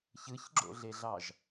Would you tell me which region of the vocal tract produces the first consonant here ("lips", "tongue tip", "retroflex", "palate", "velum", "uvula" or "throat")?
palate